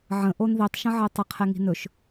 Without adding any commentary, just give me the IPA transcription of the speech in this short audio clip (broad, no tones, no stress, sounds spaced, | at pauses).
ʕ ə̃ ʔ o n ð i tˤ ʃ ə̃ ʕ i tˤ ə qʰ ɛ ŋ i̤ n ɵ ʃ